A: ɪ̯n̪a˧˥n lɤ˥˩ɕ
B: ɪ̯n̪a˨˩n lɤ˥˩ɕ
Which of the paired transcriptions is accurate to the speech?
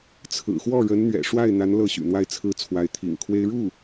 A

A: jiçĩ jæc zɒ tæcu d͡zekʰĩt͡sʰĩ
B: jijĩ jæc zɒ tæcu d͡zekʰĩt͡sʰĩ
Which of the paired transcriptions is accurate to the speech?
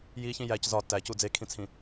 A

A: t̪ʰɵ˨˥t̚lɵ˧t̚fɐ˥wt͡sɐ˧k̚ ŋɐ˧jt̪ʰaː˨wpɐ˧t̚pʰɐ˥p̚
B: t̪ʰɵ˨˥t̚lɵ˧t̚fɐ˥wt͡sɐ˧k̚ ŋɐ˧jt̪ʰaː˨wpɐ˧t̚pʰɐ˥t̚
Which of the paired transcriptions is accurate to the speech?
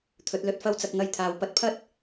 B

